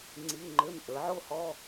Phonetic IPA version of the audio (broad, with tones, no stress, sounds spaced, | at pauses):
ŋ͡ǀ i˧˥˧ ŋ͡ǃ ʏ˧˥˧ m ʔ ə˞˩˥ ʕ o˥˧ h ɔ˧˥˧